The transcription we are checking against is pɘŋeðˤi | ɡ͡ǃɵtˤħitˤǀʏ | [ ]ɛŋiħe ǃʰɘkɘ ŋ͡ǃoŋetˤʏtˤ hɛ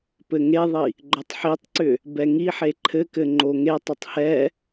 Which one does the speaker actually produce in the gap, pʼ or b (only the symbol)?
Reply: b